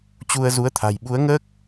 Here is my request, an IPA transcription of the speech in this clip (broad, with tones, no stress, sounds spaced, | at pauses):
t͡ɕ u˧ ə̯ z u˨˦ ə̯ t̪ʰ a̤˨˩ j ɓ u˨˦ ə̯ ŋ əː˦˥ k̚